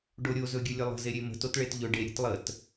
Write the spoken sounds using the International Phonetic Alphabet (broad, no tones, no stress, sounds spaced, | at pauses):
ɖ o ɾʲ o z ɵ ɡʲ ɵ lʲ ə lˠ ə̤ z e ɾʲ e m ə̤ t o t ɭ e t ʎ ɵ ɖ e ɾʲ ə̤ t lˠ ə t